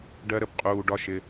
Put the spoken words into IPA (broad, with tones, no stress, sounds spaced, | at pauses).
ɖ ɜ˦ ɾ ə˨ b qʼ uː˧ ɖ ɒ˦ ʃ ɪ˧